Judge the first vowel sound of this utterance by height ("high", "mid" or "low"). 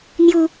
high